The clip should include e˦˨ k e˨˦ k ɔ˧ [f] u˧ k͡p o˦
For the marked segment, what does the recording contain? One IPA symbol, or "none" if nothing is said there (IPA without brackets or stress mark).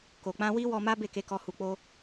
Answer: h